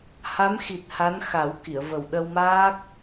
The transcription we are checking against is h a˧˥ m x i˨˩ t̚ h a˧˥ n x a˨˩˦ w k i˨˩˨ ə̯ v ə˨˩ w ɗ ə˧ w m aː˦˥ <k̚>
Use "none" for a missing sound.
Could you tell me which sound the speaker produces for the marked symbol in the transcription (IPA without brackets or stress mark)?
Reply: k̚